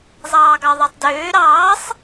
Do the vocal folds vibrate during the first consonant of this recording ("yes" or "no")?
yes